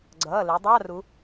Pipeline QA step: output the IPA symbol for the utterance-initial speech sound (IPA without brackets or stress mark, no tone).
ɡ͡ǀ